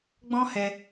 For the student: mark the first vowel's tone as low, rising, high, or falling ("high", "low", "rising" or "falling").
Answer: high